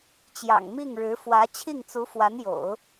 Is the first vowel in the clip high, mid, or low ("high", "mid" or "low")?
low